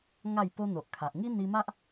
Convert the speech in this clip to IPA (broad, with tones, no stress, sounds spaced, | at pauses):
ŋ a˥˧ j p o˦ n̪ o˨ ʔ kʰ a˨ ʔ ŋ i˦ n̪ i˧ m a˦ ʔ